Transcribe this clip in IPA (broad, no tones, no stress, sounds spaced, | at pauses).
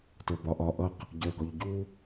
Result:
t ə˞ b ɒ ʔ ɒ ʔ ʌ q | ɟ ə˞ ɡ ɔ ʎ ɟ u